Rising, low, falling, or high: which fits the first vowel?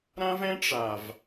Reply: high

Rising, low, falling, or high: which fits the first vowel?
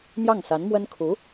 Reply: falling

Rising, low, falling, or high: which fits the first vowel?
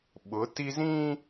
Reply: rising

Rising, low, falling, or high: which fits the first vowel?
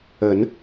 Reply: rising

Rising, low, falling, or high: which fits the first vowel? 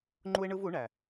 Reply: high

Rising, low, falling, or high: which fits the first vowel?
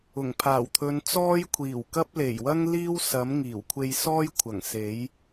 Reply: low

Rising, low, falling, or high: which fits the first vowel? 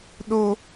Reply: high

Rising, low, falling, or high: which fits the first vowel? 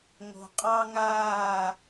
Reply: low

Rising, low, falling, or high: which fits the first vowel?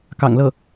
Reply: low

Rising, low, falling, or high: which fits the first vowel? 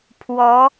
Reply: rising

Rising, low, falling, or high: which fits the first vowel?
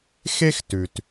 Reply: high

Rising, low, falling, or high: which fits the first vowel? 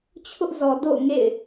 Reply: high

